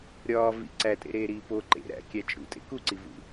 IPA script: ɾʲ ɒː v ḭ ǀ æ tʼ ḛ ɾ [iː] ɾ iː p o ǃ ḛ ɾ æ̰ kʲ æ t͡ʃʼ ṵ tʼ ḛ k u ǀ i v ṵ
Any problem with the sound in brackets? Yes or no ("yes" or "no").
yes